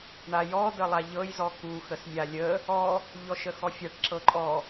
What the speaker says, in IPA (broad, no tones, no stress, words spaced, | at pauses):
ɳajɔ dəlˠaʎɤj zɔku xəsmʲalʲə | ɔ | ʎɔʃəxɔfʲaʈ ǁɤǃʼɔ